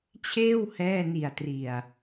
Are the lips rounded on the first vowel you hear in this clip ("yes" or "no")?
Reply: no